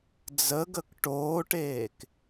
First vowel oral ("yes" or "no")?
yes